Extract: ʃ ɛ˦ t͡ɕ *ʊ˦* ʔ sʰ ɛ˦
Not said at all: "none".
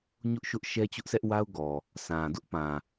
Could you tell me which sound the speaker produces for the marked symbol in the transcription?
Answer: ʊ˦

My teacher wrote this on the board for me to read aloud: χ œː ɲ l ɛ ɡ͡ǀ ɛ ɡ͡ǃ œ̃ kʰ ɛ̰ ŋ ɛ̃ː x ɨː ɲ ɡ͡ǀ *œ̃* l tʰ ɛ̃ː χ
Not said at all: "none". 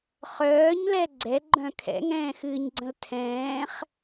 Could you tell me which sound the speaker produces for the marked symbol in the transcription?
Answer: ə̃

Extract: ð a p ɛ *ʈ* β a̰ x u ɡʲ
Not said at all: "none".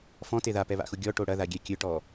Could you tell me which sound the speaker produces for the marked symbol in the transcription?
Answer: none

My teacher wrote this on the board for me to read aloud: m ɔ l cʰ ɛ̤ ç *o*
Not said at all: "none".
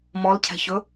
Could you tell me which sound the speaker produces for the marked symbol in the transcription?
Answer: ɵ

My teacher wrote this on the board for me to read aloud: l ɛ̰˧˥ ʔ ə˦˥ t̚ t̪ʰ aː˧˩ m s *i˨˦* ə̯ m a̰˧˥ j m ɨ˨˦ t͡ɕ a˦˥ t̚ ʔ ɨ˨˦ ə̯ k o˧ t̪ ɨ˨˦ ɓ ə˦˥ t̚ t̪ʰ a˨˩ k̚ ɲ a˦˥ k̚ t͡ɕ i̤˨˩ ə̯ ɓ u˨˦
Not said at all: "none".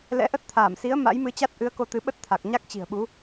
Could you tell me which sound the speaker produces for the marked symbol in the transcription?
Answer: i˨˦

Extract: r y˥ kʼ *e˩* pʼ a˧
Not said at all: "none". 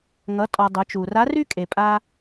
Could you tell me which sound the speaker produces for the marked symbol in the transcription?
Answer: e˩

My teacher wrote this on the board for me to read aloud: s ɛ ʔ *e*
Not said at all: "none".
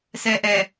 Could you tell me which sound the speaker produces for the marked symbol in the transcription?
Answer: ɛ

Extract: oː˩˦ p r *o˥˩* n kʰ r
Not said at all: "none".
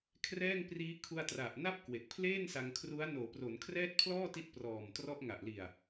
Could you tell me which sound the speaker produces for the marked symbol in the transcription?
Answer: o˩˦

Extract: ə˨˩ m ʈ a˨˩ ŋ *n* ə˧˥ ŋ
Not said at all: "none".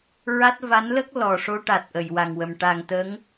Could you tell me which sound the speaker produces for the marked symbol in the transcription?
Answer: t̪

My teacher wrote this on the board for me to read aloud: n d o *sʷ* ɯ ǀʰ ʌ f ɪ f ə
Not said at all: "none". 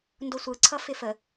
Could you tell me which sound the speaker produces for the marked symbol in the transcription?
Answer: sʷ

